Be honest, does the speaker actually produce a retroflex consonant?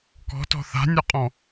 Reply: no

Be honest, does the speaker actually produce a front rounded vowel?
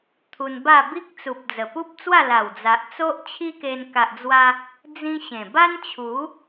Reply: no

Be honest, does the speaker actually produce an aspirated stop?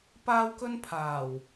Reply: yes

